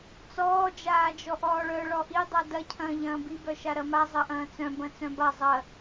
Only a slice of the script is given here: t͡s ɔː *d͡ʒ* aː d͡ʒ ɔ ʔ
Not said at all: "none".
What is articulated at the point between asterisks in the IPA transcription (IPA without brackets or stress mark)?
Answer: d͡ʒ